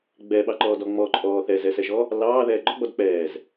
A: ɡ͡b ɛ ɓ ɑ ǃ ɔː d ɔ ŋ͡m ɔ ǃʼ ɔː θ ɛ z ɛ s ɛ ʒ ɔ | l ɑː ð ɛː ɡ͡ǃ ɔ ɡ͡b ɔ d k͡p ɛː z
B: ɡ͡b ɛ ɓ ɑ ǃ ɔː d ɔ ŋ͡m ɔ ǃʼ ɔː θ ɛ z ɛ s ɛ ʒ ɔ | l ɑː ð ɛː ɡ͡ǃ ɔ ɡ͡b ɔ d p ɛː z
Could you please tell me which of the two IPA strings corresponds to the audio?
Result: A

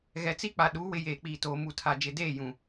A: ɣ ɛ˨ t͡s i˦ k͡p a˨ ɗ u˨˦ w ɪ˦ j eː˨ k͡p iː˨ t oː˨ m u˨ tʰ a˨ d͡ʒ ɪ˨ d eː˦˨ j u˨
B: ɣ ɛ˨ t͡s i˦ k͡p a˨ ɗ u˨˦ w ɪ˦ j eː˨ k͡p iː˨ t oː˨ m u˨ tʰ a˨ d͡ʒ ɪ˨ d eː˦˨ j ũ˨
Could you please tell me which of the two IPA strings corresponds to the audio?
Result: B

